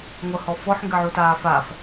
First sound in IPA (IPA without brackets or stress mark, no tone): ŋʷ